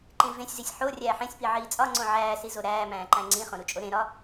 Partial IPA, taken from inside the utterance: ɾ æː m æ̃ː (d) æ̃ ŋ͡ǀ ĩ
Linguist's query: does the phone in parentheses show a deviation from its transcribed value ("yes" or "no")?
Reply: yes